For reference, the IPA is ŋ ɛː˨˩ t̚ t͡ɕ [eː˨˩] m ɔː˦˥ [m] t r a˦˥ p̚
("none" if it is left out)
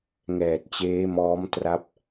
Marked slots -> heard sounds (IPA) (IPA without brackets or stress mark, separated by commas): eː˦˥, m